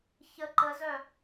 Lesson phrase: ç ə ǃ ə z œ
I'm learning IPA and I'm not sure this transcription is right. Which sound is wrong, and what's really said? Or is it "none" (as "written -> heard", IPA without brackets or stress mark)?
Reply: none